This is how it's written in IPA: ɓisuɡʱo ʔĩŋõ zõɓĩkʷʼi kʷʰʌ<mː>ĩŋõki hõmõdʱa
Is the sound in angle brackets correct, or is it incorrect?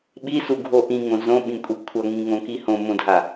incorrect